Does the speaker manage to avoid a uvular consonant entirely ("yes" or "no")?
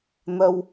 yes